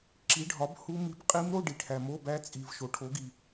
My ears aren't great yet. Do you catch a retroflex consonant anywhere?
yes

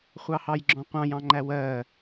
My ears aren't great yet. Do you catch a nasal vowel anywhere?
yes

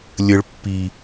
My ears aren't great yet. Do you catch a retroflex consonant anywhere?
yes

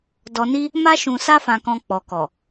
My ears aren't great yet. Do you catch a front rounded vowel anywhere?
no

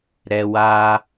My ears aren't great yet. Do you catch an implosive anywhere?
no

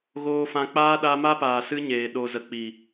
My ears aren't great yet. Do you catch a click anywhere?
no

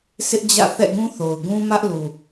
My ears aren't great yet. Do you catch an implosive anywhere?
no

